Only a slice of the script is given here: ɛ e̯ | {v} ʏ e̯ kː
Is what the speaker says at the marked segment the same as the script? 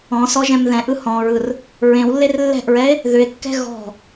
no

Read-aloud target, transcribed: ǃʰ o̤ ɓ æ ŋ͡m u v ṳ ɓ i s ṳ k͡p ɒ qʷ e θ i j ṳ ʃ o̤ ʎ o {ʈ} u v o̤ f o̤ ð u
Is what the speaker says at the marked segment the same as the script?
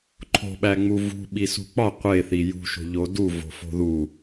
no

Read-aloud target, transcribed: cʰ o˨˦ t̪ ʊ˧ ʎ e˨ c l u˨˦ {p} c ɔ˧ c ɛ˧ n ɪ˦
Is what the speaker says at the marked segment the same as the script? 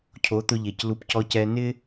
yes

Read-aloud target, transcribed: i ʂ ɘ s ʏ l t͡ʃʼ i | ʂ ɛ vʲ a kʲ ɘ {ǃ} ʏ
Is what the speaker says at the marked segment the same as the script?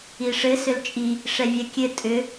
no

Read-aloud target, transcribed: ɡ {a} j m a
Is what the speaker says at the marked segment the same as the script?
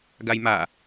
yes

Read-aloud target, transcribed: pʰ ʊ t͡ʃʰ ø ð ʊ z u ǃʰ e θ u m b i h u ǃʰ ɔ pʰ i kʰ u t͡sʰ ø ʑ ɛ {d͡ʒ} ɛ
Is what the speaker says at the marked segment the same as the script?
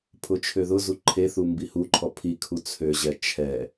no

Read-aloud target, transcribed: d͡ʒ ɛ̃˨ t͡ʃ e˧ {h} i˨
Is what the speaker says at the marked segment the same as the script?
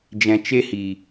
yes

